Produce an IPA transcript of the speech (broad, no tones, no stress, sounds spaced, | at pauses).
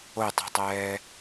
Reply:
o tˤ e̤ tˤ ɛː